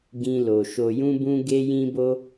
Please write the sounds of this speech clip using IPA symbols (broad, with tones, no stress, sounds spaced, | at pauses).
ɡ ĩ˧ l o˨ ʃ o˨ j ũ˧ b ũ˧ ɡ e˧ j ĩ˧ b o˧